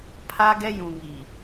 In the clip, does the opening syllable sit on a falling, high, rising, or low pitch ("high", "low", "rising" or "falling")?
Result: high